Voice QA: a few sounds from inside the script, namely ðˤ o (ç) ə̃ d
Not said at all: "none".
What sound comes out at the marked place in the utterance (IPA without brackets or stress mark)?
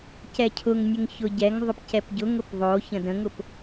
ç